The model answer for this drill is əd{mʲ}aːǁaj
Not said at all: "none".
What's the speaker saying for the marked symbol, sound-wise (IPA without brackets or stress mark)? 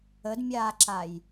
mʲ